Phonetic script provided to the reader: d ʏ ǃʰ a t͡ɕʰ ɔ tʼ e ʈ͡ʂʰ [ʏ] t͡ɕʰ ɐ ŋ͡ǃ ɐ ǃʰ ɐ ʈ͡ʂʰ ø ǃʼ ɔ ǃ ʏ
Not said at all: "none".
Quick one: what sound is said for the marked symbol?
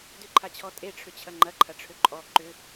ʏ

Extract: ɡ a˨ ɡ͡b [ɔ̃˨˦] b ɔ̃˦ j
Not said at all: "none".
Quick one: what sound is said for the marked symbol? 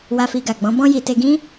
ɔ̃˨˦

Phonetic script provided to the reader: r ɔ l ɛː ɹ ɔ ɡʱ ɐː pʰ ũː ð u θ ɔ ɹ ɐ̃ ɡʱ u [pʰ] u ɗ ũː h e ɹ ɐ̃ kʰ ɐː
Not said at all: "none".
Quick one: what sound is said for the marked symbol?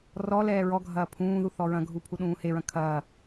pʰ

